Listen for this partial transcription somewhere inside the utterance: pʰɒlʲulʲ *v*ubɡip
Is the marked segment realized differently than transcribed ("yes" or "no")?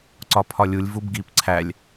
no